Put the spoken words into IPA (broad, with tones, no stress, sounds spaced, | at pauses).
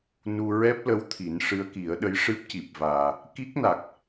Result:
n u˧ ɹ ɛ˦˥ p̚ l ə˧˥ w t̪ʰ i˨˩˦ n ʂ ɨ˧˥ ə̯ k i˨˩˦ ə̯ ɗ ə˧˥ j ʂ ɨ˦˥ p̚ c i˨˩ p̚ v aː˨˩ | k i˦˥ k̚ n a˨˩ k̚